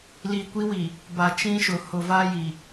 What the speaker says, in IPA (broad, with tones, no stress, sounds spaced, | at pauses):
l i˨ kʷ i˦ w i˨ | b a˨ t͡ʃ ĩ˦ ʃ ʊ˨ h ʊ˨ v a˦ j i˨